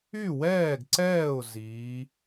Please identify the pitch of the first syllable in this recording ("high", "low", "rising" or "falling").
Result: falling